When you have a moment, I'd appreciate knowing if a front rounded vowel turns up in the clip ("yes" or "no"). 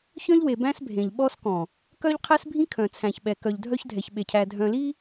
yes